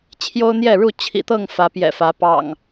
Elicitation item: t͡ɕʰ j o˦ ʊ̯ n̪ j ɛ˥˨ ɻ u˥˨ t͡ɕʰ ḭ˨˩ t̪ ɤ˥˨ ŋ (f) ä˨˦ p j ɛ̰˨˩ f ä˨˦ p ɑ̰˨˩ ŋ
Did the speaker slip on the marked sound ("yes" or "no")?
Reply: no